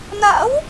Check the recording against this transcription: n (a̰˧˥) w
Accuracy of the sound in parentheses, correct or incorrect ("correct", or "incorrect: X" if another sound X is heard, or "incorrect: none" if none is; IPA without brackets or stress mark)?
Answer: correct